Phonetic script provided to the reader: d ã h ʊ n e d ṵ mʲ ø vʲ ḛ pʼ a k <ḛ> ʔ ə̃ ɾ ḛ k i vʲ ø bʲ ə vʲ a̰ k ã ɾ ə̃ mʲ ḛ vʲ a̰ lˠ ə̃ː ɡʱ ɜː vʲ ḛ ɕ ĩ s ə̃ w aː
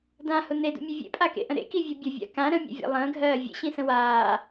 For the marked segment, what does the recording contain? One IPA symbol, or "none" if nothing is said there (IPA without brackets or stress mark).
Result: ḛ